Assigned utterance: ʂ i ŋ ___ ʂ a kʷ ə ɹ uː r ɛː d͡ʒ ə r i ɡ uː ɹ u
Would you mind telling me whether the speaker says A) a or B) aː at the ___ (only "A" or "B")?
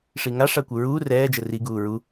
A